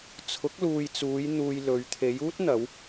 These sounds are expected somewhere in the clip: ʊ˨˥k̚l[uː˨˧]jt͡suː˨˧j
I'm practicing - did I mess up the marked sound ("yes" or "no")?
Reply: yes